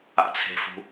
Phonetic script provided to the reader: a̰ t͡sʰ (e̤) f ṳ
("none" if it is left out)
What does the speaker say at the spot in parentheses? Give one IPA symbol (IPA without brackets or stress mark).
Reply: e̤